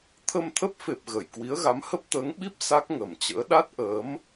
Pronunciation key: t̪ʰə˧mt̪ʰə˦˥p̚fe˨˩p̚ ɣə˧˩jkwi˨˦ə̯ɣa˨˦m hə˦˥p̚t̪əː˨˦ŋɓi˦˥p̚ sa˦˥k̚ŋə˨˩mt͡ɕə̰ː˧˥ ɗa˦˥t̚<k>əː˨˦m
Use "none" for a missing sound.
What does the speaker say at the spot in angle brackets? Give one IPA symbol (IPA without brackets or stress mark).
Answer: ʔ